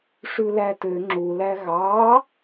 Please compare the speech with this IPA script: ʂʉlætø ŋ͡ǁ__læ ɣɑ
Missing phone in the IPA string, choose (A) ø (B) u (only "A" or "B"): B